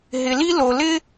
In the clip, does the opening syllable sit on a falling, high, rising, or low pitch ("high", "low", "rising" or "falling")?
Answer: low